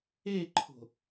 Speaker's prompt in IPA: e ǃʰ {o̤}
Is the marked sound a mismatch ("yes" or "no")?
no